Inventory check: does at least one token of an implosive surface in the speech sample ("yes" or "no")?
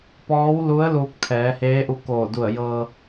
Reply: no